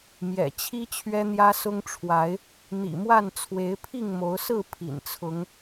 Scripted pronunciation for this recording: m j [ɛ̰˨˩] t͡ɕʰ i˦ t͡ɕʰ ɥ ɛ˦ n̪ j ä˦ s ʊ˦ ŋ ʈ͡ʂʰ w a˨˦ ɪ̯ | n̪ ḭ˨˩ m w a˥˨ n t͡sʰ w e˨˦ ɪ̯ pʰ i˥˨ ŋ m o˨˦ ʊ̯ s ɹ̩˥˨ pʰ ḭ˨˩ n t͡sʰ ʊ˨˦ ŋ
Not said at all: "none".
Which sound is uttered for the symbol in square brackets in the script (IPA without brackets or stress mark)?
ɛ̰˨˩